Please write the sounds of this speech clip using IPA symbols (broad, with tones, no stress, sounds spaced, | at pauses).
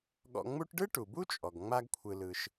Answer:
ɠ ɔ̰˧ ŋ͡m u˥ ʈ ɖ ɯ˥ ʈ u˩ b u˥ t͡ʃʼ ɔ˩ ɡ ŋ͡m a˥ ɡ kʷʰ ɯ˧ l ɯ˧ ʃ